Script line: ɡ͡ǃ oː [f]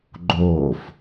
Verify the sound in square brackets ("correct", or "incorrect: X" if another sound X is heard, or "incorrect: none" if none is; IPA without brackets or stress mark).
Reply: correct